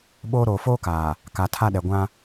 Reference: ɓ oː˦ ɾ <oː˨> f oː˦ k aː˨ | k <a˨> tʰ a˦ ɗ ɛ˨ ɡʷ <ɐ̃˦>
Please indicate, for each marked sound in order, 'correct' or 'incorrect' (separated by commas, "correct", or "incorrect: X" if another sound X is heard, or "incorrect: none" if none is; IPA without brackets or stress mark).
correct, correct, incorrect: ã˦